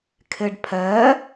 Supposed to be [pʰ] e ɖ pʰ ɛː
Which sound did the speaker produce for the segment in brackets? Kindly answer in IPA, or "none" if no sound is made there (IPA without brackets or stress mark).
kʰ